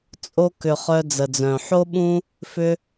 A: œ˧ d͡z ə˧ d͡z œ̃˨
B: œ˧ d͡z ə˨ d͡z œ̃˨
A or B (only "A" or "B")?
B